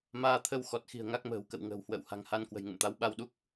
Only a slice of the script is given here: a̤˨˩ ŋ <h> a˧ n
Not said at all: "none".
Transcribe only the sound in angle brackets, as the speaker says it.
h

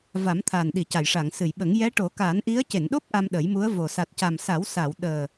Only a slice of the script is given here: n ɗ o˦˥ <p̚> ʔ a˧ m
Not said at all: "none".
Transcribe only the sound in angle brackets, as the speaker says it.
p̚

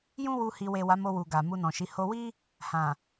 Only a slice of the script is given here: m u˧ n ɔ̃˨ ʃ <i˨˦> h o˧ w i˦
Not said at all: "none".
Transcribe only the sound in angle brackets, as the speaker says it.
i˨˦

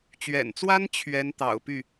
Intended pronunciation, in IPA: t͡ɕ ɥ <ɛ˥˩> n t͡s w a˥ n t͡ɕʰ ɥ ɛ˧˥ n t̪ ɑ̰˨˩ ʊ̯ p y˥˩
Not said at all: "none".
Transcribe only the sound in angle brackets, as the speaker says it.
ɛ̰˨˩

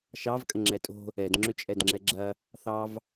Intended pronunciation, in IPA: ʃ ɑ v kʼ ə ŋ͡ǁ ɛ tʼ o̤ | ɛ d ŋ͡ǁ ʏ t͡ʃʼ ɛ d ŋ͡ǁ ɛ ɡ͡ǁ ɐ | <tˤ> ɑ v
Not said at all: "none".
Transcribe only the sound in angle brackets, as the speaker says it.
θ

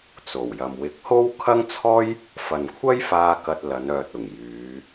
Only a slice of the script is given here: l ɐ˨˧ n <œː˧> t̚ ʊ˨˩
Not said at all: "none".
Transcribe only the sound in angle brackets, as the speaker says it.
œː˨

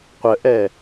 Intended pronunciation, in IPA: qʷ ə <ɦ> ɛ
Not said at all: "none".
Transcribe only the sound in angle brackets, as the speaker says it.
ʔ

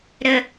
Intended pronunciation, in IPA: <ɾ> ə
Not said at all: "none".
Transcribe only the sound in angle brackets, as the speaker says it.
ɾ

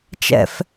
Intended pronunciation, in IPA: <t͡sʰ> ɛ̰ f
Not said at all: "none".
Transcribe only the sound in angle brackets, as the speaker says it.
t͡ʃ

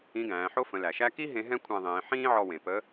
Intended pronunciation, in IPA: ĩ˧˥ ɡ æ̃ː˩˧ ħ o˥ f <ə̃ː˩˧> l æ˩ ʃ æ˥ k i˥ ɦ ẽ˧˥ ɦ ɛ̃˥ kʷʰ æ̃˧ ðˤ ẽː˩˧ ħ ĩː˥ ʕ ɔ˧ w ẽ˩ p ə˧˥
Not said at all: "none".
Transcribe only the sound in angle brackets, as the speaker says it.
ə̃˩˧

